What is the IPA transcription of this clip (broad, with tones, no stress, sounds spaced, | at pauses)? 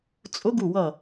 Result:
t͡sʼ ʊ˧˥ ɡ u˧˩ w ʌ˧˩